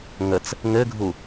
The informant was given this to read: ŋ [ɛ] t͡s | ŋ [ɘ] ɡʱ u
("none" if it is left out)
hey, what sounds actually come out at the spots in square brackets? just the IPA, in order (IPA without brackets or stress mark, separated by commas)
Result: ə, ɘ